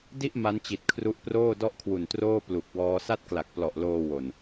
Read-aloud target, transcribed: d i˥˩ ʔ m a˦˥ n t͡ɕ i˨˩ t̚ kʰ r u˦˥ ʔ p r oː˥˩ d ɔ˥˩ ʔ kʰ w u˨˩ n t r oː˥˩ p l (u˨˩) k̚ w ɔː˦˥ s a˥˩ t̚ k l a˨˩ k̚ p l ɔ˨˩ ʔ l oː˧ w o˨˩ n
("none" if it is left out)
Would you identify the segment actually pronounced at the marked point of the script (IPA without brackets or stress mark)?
u˨˩